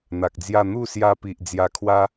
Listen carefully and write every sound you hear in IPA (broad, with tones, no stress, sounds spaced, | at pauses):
n̪ a˨ k̚ d͡z j a˥˧ n̪ u˥˧ s j a˧ p i˨ ʔ d͡z j a˧ kʰ w a˦